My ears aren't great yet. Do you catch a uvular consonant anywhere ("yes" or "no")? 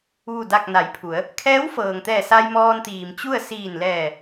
no